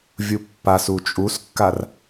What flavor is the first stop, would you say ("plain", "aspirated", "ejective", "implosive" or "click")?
plain